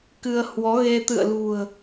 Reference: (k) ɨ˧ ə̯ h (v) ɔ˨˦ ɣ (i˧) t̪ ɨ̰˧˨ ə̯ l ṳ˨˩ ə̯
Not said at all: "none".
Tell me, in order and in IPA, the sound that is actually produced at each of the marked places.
k, w, e˧

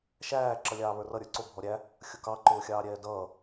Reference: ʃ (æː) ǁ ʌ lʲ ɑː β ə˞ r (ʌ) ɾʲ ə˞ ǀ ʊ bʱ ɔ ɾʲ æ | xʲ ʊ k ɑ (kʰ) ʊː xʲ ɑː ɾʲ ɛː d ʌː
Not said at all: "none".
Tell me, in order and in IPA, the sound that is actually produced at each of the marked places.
æː, ʌ, ǃ

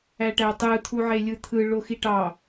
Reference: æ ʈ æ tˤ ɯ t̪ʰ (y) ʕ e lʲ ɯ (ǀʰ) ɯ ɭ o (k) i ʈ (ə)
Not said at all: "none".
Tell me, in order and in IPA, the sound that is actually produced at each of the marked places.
u, t̪ʰ, x, ɑ

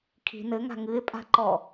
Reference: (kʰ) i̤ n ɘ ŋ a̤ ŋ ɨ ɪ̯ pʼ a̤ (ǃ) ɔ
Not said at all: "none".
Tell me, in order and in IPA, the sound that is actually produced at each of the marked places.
kʰ, ǃ

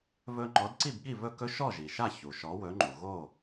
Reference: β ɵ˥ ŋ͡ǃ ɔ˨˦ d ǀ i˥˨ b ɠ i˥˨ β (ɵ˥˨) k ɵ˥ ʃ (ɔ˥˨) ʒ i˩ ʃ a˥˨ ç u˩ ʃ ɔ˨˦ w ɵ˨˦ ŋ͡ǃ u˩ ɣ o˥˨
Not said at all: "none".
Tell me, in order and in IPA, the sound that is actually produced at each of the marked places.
ɵ˥˨, ɔ˥˨

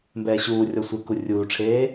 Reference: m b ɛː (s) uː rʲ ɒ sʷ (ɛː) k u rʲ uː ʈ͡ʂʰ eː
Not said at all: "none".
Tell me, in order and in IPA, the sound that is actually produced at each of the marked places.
ɕ, ɪː

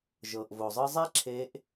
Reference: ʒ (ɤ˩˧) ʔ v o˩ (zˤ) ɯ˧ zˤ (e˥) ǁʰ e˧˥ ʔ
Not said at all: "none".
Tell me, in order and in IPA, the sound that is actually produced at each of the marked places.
ɤ˩, zˤ, e˥

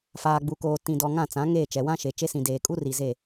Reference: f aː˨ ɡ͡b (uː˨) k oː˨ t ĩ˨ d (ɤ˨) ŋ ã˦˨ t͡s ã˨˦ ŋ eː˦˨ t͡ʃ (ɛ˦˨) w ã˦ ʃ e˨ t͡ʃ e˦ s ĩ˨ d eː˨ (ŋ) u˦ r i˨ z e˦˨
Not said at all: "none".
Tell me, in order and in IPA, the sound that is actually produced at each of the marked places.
u˨, ɔ˨, ɛ˨, kʼ

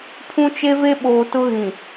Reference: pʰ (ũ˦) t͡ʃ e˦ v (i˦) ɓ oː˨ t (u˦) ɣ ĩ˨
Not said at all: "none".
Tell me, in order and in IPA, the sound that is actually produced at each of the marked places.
ũ˦, e˦, ʊ˦

